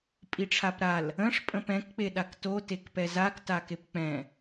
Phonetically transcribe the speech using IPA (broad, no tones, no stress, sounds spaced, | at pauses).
pʼ i ʈ͡ʂʰ a p ɾ a l | ə̃ ʂ pʼ ə̃ p ɛ̃ k k͡p e ɗ a k t o t e k p ɛ z a k t a k e p k͡p ɛ̃